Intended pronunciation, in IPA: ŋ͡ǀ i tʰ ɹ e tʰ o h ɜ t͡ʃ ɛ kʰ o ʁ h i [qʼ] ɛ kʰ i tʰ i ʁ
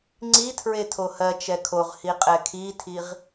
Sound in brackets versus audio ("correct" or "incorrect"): correct